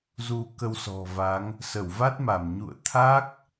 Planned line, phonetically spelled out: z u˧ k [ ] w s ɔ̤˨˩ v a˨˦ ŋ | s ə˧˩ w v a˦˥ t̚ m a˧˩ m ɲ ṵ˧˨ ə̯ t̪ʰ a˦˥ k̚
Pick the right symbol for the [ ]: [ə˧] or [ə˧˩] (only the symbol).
ə˧